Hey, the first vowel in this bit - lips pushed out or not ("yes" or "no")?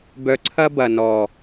yes